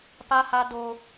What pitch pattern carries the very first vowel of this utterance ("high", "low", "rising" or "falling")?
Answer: high